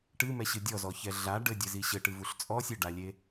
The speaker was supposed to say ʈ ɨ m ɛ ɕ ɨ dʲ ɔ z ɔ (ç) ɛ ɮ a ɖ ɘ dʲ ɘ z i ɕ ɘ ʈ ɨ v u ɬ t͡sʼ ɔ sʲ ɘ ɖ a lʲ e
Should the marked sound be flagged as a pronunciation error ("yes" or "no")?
no